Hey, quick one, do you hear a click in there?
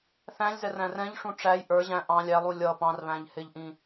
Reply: no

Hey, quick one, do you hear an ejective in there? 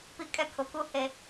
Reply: yes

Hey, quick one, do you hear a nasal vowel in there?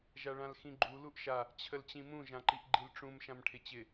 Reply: yes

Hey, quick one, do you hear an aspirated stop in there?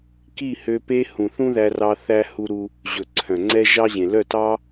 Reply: yes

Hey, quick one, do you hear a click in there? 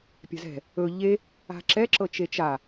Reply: yes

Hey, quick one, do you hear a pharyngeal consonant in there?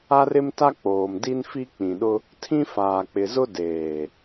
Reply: no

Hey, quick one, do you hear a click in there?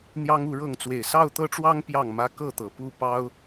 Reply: no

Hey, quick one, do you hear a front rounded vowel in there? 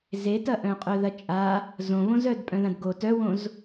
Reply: yes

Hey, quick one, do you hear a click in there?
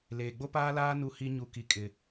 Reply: no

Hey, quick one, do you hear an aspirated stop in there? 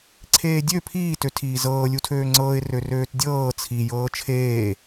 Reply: yes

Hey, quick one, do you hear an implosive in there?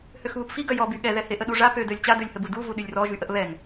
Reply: yes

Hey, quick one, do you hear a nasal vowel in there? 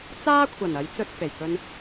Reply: no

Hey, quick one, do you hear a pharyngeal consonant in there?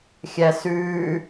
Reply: no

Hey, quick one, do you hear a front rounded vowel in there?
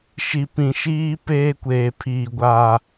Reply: no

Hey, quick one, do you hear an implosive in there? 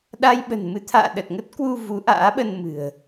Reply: yes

